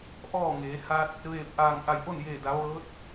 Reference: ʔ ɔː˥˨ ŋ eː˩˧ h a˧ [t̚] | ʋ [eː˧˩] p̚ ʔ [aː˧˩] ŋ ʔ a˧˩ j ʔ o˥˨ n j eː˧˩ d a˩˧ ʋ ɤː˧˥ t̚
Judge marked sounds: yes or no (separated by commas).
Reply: yes, yes, yes